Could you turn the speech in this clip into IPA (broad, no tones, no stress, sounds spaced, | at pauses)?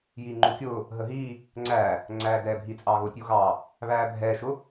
j iː ŋ͡ǃ u kʲ ʊː | ɦ ə ɦ iː | ŋ͡ǀ æː | ŋ͡ǀ æː d ɛː bʱ i t͡sʼ ɑː ɣ ʊː tʲ u ɣ ɑː | β æː bʱ ɛː ʃ ʊ